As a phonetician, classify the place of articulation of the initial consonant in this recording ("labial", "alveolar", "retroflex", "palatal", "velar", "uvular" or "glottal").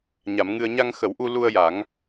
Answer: palatal